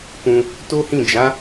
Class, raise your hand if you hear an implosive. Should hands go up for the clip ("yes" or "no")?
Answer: no